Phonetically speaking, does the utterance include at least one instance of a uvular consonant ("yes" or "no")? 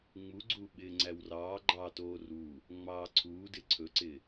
no